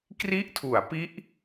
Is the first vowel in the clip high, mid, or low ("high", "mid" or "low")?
high